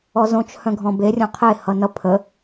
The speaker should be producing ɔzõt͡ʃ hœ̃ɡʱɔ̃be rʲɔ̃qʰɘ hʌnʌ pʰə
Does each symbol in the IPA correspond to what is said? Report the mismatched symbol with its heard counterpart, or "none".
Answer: ɘ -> e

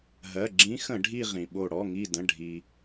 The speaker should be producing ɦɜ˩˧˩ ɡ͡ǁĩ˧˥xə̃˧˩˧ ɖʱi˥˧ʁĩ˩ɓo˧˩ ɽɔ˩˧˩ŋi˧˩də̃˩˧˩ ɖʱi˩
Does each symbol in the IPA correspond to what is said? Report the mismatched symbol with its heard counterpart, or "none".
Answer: none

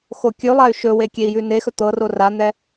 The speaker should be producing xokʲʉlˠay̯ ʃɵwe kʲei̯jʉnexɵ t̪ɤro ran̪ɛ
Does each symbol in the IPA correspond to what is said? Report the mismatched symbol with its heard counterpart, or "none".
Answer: none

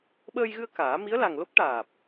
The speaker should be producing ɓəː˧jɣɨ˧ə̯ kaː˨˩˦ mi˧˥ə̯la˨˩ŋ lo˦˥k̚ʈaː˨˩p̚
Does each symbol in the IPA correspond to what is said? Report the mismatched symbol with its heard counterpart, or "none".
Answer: none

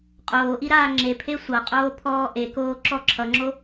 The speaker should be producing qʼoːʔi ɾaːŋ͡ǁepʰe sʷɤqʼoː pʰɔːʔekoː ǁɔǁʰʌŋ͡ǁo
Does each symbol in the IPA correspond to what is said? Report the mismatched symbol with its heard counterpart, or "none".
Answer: none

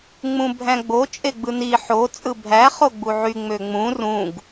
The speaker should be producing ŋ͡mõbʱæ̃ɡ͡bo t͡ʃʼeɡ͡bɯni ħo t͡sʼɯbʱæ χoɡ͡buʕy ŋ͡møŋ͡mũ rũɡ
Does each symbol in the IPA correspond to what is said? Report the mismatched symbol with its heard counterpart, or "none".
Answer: õ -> ũ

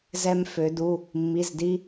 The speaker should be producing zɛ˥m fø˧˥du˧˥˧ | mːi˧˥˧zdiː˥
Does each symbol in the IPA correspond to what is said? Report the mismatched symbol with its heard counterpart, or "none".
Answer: none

